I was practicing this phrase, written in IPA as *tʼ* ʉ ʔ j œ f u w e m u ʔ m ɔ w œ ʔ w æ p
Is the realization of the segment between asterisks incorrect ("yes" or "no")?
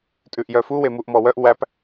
no